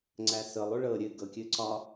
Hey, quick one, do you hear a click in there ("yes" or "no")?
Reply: yes